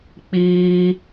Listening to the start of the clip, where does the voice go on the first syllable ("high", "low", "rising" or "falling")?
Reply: high